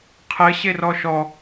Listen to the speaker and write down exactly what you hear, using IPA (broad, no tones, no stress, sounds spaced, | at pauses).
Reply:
qʰ ɘ ɕ e r ɔ ʃ ɔ